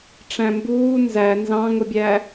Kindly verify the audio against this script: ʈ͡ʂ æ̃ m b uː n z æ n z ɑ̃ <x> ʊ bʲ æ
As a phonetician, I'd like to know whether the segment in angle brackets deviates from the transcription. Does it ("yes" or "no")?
yes